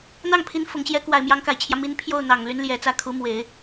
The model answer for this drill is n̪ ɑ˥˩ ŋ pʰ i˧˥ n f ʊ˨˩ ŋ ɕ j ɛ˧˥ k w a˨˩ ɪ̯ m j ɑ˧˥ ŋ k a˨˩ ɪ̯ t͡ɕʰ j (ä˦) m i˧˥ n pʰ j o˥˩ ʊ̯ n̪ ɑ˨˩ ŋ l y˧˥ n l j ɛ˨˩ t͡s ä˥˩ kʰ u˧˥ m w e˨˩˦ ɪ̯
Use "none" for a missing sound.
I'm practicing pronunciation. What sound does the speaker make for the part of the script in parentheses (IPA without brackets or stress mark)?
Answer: ä˦